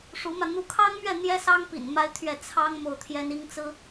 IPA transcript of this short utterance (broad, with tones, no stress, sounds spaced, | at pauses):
ʂ u˧˥ m ä˧ n̪ u˧˥ kʰ ɑ˥ ŋ m ɥ ɛ˥˩ n̪ j ɛ˥ s ɑ˥ ŋ p ḭ˨˩ n m a˥ ɪ̯ t̪ʰ ɥ ɛ˥˩ t͡sʰ ɑ˥ ŋ m o˥˩ ʊ̯ t̪ʰ j ɛ˥ n i˥ ŋ t͡s ɹ̩˥